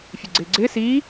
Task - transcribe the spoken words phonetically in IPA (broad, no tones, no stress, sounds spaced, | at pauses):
fʲ e ɡ͡ǀ ɪː ɡ͡ǀ ɪː s iː